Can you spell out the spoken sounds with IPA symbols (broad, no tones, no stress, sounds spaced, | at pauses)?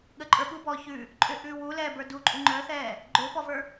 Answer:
ɠ ə ǃʼ ə˞ ɓ u b ɔː ç ʉ | ǃʼ ʏ ʔ ʉː w u l ɛː b ə˞ d u ǃʼ u ŋ͡ǃ œ θ ɛː | ɡ͡ǃ ʏː p ɔ v ə˞